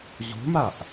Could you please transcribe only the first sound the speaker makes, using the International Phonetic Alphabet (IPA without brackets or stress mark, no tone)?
ʑ